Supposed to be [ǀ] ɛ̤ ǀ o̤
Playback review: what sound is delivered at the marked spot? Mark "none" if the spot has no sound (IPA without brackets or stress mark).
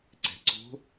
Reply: ǀ